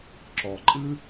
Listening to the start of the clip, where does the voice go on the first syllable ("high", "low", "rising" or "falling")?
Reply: low